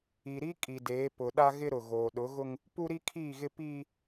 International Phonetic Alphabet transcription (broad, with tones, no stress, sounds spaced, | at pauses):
i˨ ɾ i˦ kʼ i˨ d eː˨˦ p ʊ˨ ɗ a˦ ɣ ɪ˦ ɾ ʊ˨ ɣ oː˨ ɗ ʊ˨˦ ɣ ʊ˦ ŋ | p u˦ ɾ i˦ kʰ iː˦˨ ɣ ɪ˦ p iː˦